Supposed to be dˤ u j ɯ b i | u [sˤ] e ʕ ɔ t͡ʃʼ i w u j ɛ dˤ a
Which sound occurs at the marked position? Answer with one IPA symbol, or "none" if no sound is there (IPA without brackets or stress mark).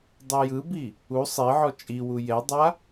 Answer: sˤ